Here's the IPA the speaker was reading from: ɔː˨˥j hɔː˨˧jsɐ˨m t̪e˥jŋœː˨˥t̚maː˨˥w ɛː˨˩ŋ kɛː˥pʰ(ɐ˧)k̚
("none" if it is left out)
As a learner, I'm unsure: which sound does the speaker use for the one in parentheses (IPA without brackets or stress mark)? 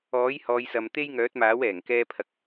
ɐ˧